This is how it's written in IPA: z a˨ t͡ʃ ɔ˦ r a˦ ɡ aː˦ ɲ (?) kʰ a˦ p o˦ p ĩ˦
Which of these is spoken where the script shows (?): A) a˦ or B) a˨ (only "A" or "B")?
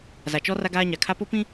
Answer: B